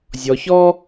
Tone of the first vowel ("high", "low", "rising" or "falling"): low